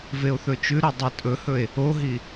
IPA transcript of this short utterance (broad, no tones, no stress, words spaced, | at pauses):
veo̯θɵt͡ʃʉɾo dˤɨtʼɵhɵe̯ | oɦi